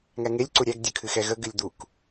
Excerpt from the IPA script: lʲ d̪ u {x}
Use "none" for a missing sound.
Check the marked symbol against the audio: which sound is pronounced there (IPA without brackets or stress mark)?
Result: k